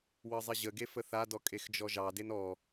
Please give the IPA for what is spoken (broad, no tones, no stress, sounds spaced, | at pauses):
w ɤ zˤ ɪ ʑ ə ɡ e f ə θ a d ɔ kʼ e x d͡ʒ ɔ ʒ ɑ d e n ɔ